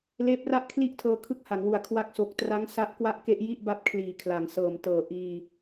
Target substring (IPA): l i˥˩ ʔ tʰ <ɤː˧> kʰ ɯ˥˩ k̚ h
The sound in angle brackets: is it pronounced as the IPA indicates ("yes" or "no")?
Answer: yes